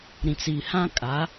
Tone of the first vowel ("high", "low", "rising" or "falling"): low